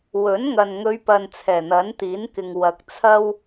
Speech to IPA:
wɵ˨˥nŋɐ˨n ŋɵ˨˧ɥpɐ˨n t͡sʰɛː˨˩n̪ɐ˨˥nt̪iː˨˥nkɪ˨ŋ wɐ˨k̚t͡sʰɐ˥w

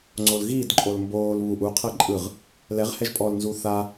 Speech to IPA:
ŋ͡ǀolɣiːdǃʼol mboːl βuʔ uqʰɤ ǃʼɯʁ | lɛʁ hɛʒpʼɔlnzuː θa

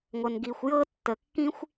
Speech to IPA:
ŋʷə˩nɡi˩xʷjɤ˥ tːə˩kːĩ˥xʷ

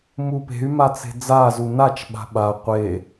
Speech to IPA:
mupe̤y̯ma t͡se̤d͡zazu nat͡ʃɓa̤ ɓa qʷe

